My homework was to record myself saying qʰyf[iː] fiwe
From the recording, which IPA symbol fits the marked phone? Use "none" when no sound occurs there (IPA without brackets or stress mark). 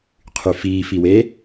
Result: iː